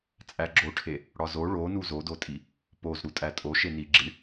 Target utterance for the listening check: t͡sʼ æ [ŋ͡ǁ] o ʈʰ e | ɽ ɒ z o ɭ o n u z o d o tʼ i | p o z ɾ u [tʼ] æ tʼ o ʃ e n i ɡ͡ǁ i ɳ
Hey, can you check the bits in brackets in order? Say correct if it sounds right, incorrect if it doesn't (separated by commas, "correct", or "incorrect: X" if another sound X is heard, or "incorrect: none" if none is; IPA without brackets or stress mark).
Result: incorrect: ɡ͡ǁ, correct